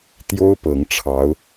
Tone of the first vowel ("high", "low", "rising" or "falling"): high